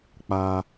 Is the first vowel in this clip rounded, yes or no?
no